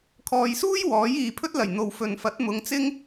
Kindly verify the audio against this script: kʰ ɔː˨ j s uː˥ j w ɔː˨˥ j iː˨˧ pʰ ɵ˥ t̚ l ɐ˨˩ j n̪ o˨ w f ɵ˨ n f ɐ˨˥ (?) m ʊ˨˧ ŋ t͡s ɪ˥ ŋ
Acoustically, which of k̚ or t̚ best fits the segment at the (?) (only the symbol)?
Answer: t̚